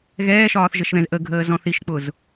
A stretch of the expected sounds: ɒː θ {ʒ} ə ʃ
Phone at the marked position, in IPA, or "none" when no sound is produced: ʒ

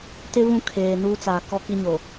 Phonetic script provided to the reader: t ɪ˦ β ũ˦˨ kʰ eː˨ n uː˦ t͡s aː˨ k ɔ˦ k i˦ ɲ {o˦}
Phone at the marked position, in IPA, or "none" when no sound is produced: o˨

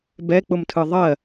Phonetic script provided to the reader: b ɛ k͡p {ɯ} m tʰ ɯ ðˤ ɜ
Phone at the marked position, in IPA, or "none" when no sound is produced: ʊ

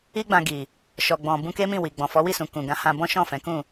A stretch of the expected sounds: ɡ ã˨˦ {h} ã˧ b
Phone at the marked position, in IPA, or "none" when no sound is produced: h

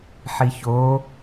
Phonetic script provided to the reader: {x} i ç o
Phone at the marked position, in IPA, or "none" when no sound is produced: ħ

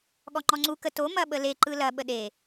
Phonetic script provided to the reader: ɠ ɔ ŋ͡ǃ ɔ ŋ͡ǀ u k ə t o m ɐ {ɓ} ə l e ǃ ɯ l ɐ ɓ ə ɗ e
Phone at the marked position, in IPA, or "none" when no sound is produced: ɓ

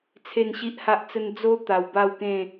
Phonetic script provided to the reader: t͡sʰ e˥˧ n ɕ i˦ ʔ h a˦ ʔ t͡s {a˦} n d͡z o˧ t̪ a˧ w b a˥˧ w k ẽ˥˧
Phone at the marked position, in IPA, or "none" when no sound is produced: ə˦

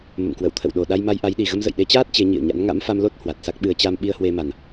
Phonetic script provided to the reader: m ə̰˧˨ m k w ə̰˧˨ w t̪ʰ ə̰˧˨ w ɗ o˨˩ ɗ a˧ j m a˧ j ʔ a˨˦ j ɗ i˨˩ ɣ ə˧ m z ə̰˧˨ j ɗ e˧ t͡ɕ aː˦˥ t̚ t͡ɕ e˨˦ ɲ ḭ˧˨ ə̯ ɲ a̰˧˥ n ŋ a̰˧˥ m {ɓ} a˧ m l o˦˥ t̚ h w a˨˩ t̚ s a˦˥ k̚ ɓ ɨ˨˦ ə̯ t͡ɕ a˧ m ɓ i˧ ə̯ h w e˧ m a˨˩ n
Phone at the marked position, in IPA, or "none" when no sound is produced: f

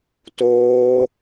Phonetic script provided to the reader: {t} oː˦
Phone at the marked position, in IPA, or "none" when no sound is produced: t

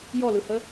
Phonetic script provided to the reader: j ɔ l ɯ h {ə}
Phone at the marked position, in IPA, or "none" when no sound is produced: ə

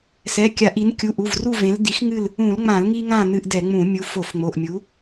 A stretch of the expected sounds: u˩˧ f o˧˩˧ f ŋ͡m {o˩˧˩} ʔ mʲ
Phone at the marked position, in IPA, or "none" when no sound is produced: o˩˧˩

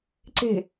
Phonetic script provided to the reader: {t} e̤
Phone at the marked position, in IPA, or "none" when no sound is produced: ǀ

